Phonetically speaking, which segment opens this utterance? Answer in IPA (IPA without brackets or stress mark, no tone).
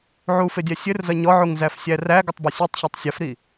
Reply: ʕ